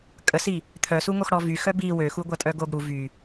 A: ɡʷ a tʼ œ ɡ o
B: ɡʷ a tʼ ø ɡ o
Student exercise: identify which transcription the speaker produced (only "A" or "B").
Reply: A